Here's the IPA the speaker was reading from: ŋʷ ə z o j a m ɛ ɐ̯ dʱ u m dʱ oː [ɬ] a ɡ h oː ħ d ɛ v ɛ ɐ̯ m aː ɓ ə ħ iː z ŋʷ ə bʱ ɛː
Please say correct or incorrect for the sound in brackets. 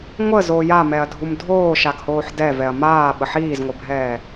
incorrect